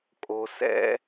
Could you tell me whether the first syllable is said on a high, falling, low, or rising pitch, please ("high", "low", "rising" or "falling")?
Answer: low